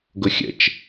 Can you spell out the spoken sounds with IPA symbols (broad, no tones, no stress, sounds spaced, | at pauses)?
ɡ ʊ xʲ ə̰ t͡ʃ